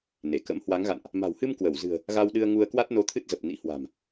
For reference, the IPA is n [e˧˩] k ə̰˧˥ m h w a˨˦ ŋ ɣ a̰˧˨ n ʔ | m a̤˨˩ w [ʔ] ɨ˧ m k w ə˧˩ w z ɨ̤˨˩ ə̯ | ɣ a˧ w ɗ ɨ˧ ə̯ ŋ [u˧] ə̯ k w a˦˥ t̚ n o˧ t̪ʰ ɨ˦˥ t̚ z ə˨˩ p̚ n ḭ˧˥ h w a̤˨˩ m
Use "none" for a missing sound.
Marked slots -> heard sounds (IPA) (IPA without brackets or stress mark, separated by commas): e˧˩, h, u˧